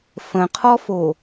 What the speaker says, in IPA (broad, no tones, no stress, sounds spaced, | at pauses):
f ə̃ qʰ ɔ f o